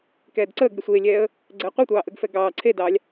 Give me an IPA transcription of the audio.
k ɛː d ǀ əː ɡ ɾʲ ə sʷ eː lʲ ɛː ə̯ | ɡ͡ǀ ɛː qʷ e tʷ ɑː ʔ əː ɡ f ɛ ɡ ɑː ǀʰ e d ɑː lʲ

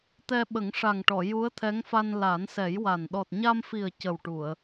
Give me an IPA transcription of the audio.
t̪ ɛ˧ ɓ ə˨˩˦ ŋ ʂ a˨˩ ŋ ʈ ɔ˨˩˨ j u˧˥ ə̯ t̪ʰ ɛ˧˥ ŋ f a˧ n l a˨˩˦ n s ɛ˨˩˦ j w a˨˩ n ɗ ɔ˨˩ t̚ ɲ a˧ m f i˨˩ ə̯ c ə˨˩ w ʈ u˨˩˨ ə̯

